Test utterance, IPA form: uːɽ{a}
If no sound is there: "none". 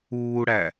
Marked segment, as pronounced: æ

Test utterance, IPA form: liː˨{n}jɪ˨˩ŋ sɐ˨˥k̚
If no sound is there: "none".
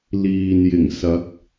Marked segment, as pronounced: n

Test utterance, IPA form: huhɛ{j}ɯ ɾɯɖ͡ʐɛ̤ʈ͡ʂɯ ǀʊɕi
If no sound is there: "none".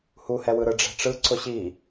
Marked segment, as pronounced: w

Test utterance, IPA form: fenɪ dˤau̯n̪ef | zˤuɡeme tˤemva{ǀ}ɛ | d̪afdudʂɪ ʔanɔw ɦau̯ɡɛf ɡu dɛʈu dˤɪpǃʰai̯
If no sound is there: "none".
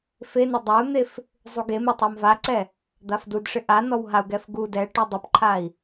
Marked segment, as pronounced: ǀ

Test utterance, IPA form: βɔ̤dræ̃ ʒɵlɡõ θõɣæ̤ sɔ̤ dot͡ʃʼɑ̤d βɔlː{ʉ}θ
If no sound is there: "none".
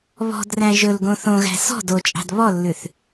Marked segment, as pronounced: ʉ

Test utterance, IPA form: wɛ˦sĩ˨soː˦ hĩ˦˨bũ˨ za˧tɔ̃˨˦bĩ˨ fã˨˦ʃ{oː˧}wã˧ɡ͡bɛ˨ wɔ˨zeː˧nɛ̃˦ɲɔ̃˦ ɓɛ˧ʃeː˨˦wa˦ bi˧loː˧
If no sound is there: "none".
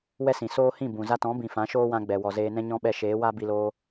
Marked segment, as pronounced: oː˦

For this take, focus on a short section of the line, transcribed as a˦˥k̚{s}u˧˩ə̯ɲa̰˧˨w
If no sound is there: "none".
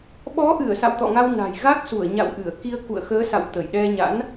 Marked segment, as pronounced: s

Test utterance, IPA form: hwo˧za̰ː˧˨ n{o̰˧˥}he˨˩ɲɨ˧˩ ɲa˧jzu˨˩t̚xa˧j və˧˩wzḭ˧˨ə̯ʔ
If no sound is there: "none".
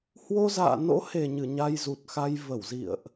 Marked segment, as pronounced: o̰˧˥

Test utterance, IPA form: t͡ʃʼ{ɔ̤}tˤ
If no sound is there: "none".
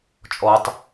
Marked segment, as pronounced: ɔ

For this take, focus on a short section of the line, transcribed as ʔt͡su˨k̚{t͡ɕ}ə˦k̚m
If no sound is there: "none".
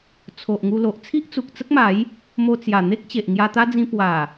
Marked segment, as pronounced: t͡s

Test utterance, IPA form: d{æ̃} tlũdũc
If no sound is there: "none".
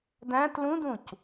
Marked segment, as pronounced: æ̃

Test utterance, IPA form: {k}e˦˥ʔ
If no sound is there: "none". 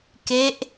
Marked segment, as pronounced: k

